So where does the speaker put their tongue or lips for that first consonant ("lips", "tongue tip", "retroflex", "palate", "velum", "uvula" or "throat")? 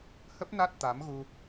throat